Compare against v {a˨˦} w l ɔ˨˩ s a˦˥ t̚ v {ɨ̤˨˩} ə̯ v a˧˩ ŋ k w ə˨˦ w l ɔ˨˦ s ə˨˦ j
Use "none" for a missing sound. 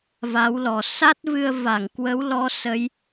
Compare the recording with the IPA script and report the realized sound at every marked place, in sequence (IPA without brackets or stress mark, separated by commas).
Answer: a˨˦, ɨ˧